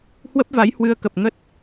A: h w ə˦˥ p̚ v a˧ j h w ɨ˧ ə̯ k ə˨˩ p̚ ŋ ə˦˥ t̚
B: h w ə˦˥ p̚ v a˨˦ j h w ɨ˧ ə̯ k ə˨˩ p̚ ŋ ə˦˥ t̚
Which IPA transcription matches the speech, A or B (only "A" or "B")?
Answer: B